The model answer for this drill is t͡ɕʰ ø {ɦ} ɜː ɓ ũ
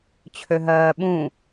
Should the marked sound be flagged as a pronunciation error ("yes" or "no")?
no